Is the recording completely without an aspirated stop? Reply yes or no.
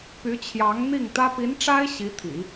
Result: no